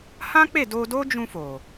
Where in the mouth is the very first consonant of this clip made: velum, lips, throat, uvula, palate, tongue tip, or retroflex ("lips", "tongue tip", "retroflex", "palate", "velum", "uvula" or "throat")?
throat